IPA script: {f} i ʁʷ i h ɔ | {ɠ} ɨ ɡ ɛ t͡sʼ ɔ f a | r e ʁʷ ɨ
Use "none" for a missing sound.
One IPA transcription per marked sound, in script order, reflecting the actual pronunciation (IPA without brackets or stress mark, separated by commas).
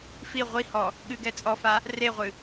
f, ɠ